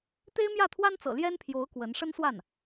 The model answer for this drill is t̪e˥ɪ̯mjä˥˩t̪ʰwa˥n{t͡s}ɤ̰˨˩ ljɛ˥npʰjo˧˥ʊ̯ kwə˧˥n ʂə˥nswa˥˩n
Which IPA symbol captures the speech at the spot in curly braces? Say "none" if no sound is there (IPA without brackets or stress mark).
t͡s